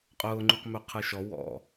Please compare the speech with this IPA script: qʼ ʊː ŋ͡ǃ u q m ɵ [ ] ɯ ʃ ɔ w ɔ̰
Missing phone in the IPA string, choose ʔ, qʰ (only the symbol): qʰ